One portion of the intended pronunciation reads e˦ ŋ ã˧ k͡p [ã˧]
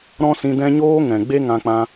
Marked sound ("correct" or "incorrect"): correct